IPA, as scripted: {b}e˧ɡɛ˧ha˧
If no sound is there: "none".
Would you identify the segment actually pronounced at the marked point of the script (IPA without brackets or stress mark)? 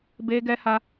b